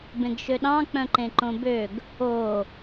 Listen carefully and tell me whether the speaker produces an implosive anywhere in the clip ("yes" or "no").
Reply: yes